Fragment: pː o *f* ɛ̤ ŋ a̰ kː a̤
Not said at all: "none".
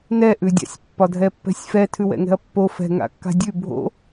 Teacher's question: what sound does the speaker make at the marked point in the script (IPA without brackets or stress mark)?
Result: f